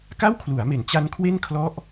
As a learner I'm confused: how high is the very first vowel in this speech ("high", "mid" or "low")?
low